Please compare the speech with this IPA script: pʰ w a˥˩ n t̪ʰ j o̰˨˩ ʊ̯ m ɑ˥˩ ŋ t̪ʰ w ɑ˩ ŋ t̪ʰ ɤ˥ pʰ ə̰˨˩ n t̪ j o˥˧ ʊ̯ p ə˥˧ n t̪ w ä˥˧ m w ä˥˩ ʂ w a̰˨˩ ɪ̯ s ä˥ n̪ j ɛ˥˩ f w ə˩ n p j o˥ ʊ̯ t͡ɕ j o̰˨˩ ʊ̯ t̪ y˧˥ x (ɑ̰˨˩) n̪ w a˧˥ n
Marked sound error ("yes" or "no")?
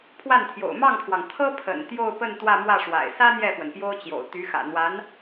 yes